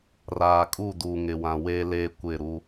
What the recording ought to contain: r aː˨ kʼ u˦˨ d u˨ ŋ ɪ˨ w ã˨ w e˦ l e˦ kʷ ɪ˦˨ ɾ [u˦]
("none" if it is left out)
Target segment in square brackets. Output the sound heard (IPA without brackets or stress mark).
u˦